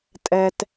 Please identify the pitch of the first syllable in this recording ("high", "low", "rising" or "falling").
low